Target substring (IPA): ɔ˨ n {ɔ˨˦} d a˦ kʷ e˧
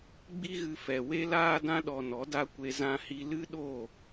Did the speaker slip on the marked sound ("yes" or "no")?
no